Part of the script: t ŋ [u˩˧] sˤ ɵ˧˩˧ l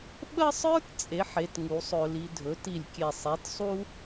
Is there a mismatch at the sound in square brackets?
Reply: no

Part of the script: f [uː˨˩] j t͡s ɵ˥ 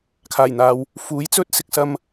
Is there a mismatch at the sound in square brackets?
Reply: yes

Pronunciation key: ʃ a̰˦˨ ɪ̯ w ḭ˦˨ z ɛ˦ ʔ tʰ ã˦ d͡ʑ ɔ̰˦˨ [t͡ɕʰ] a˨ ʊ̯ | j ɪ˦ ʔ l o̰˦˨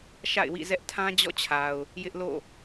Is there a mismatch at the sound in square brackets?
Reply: no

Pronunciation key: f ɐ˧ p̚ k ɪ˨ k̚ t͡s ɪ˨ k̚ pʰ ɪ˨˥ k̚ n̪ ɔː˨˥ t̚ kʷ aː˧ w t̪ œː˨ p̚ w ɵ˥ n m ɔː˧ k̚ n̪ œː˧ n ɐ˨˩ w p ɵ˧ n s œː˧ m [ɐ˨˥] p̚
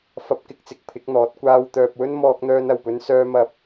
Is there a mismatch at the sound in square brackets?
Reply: yes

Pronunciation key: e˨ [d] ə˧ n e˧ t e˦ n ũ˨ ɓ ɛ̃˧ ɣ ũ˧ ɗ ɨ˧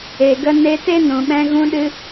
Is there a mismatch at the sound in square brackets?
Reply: yes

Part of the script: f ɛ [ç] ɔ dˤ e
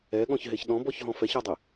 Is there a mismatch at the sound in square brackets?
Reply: no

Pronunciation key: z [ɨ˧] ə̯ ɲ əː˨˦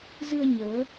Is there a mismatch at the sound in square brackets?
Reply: no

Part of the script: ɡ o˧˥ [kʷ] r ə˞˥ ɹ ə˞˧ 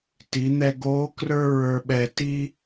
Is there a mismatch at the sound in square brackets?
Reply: yes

